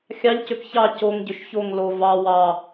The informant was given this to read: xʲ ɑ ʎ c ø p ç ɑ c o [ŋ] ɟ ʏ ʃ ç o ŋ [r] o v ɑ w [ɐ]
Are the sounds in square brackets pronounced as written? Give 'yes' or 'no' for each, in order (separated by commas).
yes, no, no